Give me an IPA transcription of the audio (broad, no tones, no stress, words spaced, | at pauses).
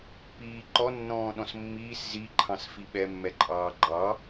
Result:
piːǃɔ nːɔ̃ːɗɔ̃smːiːs zi ǃʰɑ̃sfiɓɛ mːɛǃʼɑːɡ͡ǃɑ